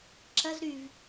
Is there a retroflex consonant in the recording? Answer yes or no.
no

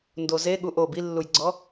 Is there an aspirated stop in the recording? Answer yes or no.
no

